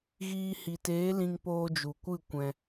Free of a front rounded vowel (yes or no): yes